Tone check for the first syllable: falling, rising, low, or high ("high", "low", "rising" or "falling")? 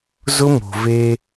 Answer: high